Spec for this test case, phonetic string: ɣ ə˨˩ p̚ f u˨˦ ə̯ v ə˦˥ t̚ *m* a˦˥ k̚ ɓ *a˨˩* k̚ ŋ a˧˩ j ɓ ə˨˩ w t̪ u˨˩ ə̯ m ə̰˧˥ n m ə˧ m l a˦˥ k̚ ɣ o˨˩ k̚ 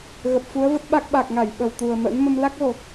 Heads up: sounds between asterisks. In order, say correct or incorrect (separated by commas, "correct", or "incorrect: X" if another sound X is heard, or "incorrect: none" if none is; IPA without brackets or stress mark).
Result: incorrect: ɓ, correct